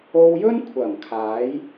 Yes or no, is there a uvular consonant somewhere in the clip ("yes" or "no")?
no